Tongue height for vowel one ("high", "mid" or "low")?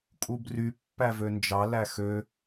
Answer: high